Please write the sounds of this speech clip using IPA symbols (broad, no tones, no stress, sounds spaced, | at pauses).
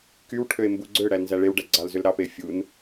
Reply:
k y w ʈʰ ø e̯ m b u ɡ͡ǀ ø ɽ æ l n z æ ɭ e w ɖ æ ɡ͡ǀ ɑ l z ø l ɾ ɑ p e fʲ u n